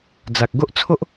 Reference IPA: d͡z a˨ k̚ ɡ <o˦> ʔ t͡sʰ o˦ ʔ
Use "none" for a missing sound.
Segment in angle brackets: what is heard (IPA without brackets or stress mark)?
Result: o˦